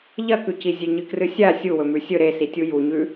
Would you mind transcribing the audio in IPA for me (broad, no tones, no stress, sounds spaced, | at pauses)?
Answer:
ʎ ɐ k ʉ c i zʲ e ɲ ɨ k r ɨ sʲ a sʲ u w ɵ m ʉ sʲ ɵ ɾ e s i tʲ u j u ɲ ʉ